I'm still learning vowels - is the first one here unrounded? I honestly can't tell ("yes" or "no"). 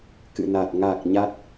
yes